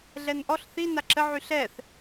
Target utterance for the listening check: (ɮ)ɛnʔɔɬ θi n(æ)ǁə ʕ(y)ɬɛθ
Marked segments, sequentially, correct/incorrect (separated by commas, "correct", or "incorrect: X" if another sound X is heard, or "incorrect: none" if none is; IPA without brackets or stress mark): correct, incorrect: a, correct